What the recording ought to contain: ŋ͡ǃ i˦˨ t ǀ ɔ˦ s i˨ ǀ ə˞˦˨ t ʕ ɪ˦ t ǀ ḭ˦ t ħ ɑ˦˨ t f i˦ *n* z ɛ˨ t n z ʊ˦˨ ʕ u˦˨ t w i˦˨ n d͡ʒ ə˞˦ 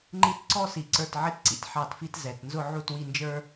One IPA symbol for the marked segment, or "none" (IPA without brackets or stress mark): t